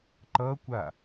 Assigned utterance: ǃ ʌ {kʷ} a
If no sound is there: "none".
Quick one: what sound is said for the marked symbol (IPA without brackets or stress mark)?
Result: kʷ